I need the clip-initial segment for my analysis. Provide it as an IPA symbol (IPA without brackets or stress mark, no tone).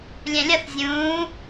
lʲ